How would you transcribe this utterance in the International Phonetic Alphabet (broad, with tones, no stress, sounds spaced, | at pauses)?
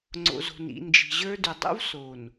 ŋ͡ǀ o̰˨ z o̤˨ n ḭ˨ n d͡ʒ i̤˨ ʑ ə˞˦ d y˨ dˤ ṵ˦ v s o˨ n